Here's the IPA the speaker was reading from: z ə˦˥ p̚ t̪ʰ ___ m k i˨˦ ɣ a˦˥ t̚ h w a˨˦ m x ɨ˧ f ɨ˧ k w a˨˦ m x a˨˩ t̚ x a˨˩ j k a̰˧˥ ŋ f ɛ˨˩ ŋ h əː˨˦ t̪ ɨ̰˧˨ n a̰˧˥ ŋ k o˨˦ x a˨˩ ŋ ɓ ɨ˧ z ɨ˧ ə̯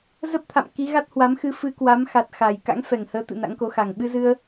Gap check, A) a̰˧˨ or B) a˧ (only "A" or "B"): A